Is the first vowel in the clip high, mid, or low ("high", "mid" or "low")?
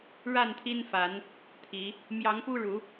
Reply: low